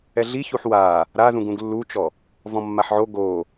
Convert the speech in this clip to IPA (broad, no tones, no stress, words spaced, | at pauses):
ɛɮiçuħ wa | ɾaðũɡ ũɡlːut͡ʃɔ | vɔ̃mːaħʕo ɡo